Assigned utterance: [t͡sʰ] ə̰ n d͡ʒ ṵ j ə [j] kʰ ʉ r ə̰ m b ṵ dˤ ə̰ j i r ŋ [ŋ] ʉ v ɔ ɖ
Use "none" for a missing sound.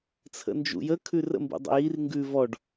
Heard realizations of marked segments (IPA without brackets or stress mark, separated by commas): t͡sʰ, none, ɡ